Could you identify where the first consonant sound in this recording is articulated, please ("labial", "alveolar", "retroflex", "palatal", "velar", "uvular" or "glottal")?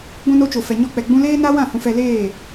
velar